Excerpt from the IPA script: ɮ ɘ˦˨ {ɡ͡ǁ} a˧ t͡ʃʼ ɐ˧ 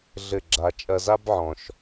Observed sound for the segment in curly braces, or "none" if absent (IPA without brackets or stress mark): ɡ͡ǁ